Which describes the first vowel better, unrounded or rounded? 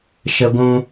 unrounded